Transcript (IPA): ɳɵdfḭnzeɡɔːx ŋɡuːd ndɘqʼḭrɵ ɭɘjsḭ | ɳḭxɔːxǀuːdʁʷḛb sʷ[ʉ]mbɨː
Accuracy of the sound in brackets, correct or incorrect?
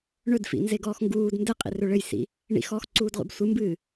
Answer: incorrect: ɨ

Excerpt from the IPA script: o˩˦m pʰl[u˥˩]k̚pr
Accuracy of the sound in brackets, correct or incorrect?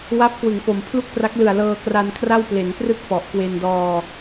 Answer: correct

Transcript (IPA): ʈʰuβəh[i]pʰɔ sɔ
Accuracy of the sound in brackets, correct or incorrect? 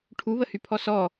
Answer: incorrect: y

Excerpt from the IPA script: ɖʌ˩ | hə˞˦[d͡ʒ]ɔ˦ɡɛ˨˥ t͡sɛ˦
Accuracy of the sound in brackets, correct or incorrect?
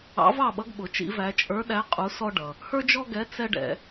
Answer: correct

